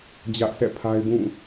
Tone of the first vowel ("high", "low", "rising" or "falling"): high